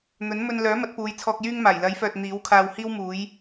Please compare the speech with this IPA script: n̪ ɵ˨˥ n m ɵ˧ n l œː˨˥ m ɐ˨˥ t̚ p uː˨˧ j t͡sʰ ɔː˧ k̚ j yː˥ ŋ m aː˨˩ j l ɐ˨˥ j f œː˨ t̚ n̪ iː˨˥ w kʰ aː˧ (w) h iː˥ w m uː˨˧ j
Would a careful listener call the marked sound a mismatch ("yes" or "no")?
no